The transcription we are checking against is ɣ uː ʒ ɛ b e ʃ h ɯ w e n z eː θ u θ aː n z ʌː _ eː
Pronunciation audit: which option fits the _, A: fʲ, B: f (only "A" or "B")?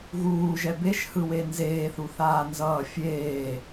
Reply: A